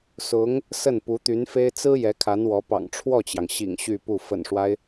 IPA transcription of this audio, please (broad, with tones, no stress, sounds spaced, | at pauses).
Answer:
s ʊ˧˥ ŋ | s ə˥˩ n p u˧˥ t̪ y˧˥ n f e˥ ɪ̯ t͡s ɹ̩˥ j ɛ˧˥ kʰ a˧˥ n w ɔ˧˥ p ɑ̰˨˩ ŋ ʈ͡ʂʰ w ɔ˥˩ t͡ɕ j ɑ˩ ŋ ɕ ḭ˨˩ ŋ ɕ y˥˧ p u˥˩ f ə̰˨˩ n ʂ w a˦ ɪ̯